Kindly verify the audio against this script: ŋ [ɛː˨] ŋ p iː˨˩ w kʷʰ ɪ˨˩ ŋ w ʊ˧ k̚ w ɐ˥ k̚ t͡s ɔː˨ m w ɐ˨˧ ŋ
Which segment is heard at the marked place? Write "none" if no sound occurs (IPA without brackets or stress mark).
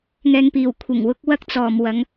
ɛː˨